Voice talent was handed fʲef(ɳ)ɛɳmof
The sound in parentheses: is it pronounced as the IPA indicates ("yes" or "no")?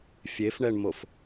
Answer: yes